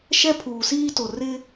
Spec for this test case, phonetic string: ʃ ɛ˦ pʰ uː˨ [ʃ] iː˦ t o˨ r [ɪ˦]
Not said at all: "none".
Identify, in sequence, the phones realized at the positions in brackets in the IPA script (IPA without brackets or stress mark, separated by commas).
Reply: s, ɪ˦